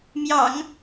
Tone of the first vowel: low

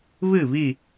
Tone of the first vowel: falling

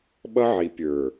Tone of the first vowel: high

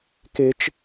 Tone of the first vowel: high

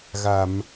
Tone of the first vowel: low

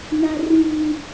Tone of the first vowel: high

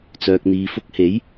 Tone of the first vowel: low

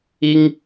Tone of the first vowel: high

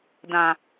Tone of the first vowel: low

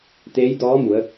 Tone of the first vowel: rising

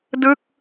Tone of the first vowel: falling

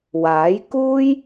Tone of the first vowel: rising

